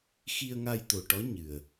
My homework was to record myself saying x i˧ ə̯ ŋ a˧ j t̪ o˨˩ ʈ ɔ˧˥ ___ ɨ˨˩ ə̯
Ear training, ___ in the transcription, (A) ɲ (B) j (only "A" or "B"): A